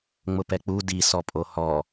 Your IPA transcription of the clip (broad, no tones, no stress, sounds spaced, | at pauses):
ŋ͡m ʊ p ɛ k͡p u d i s ɔ pʼ o h ɔ